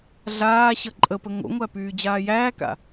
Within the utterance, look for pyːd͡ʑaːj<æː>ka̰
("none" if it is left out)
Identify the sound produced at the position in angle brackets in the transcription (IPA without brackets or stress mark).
æː